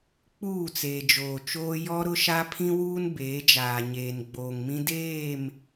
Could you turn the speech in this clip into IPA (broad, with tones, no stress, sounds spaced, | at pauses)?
k͡p uː˦˨ t͡s eː˨ d͡ʒ oː˨ t͡ʃ oː˦ j ɔ˦ ɾ ʊ˦ ʃ a˦ pʰ ĩ˦ w uː˦ n b eː˨˦ d͡ʒ aː˨ ɲ eː˨ n ɡ͡b oː˨ ŋ m ĩ˦ d eː˦˨ m